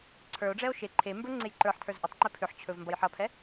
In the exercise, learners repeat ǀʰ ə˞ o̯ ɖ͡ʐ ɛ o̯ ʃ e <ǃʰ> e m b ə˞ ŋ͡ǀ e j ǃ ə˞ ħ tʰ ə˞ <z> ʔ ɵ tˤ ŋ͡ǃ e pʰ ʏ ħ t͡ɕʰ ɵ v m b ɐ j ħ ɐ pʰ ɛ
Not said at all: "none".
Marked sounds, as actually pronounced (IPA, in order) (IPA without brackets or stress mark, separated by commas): ǃʰ, z